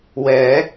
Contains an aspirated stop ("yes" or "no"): no